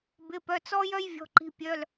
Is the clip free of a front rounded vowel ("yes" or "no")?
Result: no